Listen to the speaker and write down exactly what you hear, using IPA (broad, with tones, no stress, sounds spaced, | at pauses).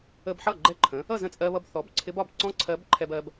ə˧ b ħ ʌ˥˩ ɡ͡ǃ ɛ˥˧ ǃʰ ə̃˩˥ | ʌ˥˩ z ə̃˥˩ t͡sʼ ɜ˧ β ʌ˧ b θ ɔ˩˥ b ǀʰ ɪ˧˥ b ɒ˥˩ b ǀ ɔ̃˥ ǀʰ ɜ˧˥ b ǃʰ ɛ˧ b ɜ˧ b